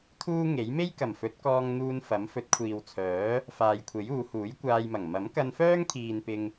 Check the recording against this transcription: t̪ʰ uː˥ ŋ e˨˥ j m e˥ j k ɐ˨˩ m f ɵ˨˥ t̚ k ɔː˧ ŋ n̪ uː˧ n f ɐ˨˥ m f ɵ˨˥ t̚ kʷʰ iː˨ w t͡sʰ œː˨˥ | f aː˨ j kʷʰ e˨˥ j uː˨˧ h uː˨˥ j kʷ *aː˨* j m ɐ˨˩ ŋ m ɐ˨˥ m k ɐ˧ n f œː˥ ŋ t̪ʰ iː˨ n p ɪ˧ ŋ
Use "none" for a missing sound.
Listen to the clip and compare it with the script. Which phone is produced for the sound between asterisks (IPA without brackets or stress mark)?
aː˧